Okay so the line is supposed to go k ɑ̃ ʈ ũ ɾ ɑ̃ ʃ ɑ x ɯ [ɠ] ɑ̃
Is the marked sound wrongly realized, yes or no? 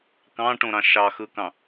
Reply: yes